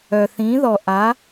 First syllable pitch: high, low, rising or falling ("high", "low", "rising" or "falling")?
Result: low